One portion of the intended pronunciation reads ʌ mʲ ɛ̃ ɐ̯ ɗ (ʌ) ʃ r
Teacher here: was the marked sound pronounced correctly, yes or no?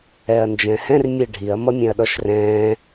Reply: no